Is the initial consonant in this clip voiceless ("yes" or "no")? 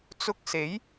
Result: yes